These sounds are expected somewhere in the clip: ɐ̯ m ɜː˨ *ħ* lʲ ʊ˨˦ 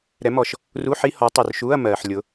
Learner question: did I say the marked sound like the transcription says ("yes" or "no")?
yes